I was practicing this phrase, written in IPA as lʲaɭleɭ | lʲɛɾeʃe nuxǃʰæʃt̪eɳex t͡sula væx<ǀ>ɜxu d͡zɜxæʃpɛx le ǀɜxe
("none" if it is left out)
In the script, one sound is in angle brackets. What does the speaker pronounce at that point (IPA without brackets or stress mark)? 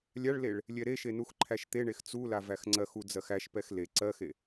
ŋ͡ǀ